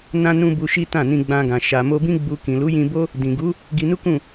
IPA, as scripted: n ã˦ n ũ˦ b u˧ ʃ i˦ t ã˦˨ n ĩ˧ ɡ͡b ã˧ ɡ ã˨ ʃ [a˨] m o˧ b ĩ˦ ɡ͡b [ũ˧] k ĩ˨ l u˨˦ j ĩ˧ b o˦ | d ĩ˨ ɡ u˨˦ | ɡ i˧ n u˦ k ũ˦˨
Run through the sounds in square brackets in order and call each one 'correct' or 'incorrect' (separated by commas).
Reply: correct, incorrect